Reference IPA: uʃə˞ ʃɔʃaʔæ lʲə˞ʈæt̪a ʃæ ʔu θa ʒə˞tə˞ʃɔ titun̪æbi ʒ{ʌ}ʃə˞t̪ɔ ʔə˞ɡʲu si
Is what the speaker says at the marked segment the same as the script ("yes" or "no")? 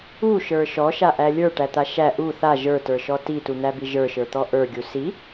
no